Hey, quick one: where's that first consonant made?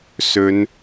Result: tongue tip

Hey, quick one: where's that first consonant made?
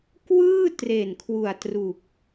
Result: velum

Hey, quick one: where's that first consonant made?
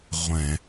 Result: uvula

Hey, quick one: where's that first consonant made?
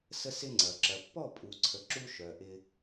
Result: tongue tip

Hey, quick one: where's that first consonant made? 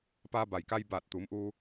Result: lips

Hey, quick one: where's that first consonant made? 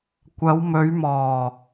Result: velum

